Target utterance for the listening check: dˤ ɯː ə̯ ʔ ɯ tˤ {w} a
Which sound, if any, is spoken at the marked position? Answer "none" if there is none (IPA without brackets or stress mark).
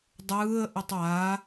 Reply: w